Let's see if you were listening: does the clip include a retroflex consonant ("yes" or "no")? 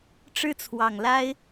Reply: yes